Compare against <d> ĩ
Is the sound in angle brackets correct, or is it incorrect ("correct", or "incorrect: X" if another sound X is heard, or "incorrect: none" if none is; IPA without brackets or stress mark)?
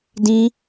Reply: correct